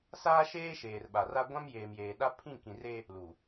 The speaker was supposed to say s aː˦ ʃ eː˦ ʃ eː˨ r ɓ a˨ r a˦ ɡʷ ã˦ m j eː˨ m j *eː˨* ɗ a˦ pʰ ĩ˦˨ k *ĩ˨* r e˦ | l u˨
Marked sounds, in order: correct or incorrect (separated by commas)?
correct, correct